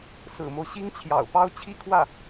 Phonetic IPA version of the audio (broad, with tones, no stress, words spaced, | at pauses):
sɹ̩˨˩mo˦ʊ̯ɕi˥ŋt͡ɕʰjɑ̰˨˩ʊ̯ pɑ˥˧ʊ̯t͡ɕʰi˥˧kʰwä˥˩